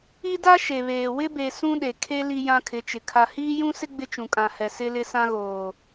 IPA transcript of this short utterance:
i˦ d a˦ ʃ e˨ β eː˨ w ɪ˦ b e˨ s ũ˦ ɗ e˨ kʰ e˦ l i˦ j ã˦ kʰ ɪ˨˦ t͡ʃ ɪ˨ kʰ a˨ h iː˦ j ũ˦ s ɪ˦ ɡ͡b ɪ˦ t͡ʃ ũ˨ kʼ ã˨ h ɛ˨ s ɪ˦ l ɪ˦ s ã˦ ɣ oː˨

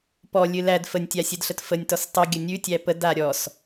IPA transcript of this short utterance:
p ɔ lʲ ɨ l æ d f ə nʲ tʲ a sʲ ɨ d ɬ ə t f ə nʲ t ɔ s tˤ ʉ ɡʲ ə nʲ ʉ tʲ æ p ə d a ɾʲ ɔ s

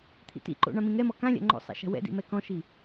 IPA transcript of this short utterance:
t̪ʰ ḭ t ḭ ǃ o̰ ɳ ã m ĩ ŋ ɛ m ɔ k ã lʲ a̰ ŋ͡ǃ o̰ sˤ ɛ̰ ʃ a̤ w ɛ̰ d ḭ m ɛ k ɔ̃ ʃ i

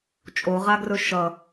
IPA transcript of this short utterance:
t͡ʃʼ o ʁ a ɡ r ɵ ʃ ʌ

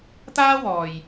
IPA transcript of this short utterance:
t̪ aː˥ w ɔː˨ j

